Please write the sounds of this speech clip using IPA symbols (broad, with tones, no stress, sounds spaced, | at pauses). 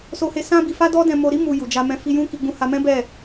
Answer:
s o˦ h e˦ s ã˦ b i˧ f a˦ d ɔ˦ d ɛ̃˧ m o˧ ɾ i˦ m u˧ j u˨ d͡ʒ a˧ m ɛ̃˧ f i˧ j ũ˦ k i˧ ɡ͡b ũ˧ h a˧ m ɛ̃˦ b ɛ˦˨